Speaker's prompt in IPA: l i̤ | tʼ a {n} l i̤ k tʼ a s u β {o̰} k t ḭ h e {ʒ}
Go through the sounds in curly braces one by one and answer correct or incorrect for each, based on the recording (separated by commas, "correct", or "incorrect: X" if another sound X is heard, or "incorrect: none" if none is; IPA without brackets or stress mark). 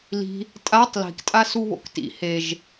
incorrect: tˤ, correct, correct